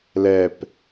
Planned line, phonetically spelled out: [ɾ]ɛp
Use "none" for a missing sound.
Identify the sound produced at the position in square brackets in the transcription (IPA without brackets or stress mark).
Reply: l